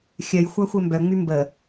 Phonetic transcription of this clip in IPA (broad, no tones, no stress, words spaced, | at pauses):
xʲœj xʷaxʷɛmbœŋ͡my mbə